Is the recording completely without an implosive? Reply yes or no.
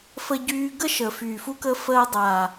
yes